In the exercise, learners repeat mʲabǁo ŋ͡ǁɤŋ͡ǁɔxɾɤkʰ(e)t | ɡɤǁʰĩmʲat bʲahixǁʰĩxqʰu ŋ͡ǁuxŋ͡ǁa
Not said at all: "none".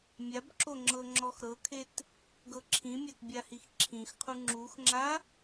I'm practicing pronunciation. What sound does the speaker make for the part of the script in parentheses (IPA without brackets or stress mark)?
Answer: e